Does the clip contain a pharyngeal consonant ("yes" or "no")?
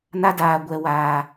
no